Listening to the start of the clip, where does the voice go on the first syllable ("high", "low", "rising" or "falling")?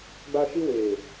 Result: high